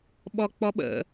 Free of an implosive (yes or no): no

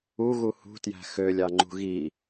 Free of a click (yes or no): no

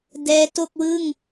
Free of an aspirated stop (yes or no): yes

